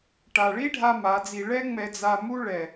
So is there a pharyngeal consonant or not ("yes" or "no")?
no